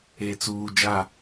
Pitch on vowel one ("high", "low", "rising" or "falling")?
low